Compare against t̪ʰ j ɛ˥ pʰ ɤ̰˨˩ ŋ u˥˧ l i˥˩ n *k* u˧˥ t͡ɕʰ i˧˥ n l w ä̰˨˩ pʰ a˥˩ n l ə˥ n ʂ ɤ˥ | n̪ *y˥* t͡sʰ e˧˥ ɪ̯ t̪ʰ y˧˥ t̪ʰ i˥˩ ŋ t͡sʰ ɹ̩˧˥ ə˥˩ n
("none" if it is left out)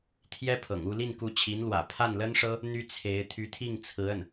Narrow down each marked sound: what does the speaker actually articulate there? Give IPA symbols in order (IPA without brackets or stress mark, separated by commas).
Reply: k, y˥